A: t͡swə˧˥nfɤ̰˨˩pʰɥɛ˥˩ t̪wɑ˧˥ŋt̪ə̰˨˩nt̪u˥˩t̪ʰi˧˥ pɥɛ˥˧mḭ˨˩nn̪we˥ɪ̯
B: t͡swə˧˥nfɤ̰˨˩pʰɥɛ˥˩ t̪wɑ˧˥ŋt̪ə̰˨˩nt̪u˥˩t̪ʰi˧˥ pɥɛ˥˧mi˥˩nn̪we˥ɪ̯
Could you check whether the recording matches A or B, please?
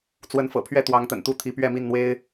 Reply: B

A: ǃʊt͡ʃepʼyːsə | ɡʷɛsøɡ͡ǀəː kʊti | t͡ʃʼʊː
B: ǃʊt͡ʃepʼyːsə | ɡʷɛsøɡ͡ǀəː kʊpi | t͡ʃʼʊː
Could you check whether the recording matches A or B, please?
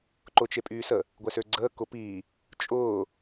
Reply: B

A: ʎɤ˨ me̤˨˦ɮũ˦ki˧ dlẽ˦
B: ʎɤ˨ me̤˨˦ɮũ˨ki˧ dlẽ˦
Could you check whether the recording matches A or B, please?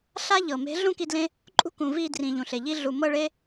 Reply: A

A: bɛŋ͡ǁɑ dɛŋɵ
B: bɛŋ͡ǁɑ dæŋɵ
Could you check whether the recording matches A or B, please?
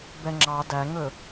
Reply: B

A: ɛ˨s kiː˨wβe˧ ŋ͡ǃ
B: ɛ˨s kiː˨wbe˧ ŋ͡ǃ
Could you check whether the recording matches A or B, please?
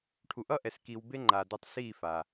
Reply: B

